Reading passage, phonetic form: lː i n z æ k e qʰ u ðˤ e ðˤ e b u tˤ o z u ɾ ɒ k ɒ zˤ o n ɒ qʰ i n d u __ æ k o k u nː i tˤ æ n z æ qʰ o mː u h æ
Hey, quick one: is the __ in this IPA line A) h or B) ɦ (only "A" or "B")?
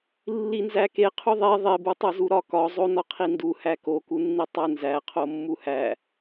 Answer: A